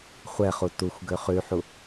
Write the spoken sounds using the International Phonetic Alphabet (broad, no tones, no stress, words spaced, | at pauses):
χʷɛχu tuxʷɡøχ ʉħu